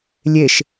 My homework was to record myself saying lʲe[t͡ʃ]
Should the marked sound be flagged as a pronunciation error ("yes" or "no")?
yes